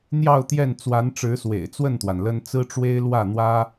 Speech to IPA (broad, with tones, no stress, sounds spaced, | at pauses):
n̪ j ɑ˥˧ ʊ̯ t̪ j ɛ˥˩ n t͡s w a˧˥ n ʈ͡ʂ ɻ̩˧˥ s w ḛ˨˩ ɪ̯ t͡s w ə˥˩ n t̪ w a˩ n l ə˥ n t͡s ɹ̩˥ ʈ͡ʂ w e˥ ɪ̯ l w ä˥˩ n̪ w ä˥